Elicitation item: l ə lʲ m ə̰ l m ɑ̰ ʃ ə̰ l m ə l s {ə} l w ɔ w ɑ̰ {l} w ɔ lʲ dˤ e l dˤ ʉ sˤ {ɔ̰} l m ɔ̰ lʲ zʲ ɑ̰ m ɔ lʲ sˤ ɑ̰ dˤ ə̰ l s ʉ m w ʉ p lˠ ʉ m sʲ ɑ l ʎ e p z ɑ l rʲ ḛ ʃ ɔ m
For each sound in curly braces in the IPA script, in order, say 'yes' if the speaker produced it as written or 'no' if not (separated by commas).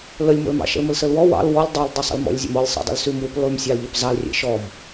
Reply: yes, yes, no